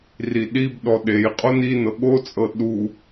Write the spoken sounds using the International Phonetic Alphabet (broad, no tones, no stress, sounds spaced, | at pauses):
r i ɗ i b ɗ ɔ ɗ e j qʼ o n i n ɤ ɠ o t͡sʼ ɤ ɗ u